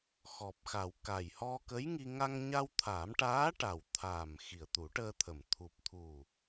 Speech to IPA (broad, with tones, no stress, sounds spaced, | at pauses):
x ɔ˨˩ p̚ x a˨˩˨ w k a˨˩ j h ɔ˧ k ə˧˥ j ŋ i˧ ŋ a˧ ŋ ɲ a˧ w t̪ʰ a˨˩˦ m ʈ aː˧˥ ʈ a˨˩ w t̪ʰ aː˨˩ m x i˨˩ ə̯ t̪ u˨˩˦ ʈ əː˧ t̪ʰ ə˨˩ m t̪ʰ u˨˩ p̚ t̪ʰ u˨˩